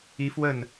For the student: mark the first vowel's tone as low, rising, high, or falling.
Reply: rising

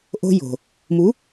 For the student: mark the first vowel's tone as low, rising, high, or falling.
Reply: high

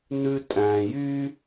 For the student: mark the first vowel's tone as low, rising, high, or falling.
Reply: low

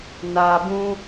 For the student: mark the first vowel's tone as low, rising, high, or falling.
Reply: low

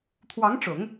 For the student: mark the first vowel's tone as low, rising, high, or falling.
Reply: rising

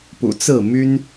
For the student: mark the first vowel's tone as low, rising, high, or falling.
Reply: low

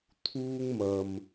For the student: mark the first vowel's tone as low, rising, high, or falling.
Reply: high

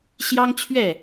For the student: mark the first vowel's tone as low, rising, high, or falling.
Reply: high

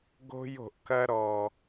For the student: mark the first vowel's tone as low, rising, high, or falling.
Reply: high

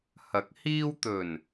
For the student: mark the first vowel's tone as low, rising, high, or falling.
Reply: rising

